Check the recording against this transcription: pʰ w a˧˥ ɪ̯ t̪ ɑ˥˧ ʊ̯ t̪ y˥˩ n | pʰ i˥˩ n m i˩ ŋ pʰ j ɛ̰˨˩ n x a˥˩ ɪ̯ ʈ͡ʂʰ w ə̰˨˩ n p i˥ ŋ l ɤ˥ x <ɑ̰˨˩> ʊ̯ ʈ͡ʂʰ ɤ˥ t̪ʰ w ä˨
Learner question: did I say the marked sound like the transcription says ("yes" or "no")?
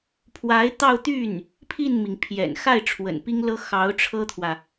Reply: no